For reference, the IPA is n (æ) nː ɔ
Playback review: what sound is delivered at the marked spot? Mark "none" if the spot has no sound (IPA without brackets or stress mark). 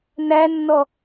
æ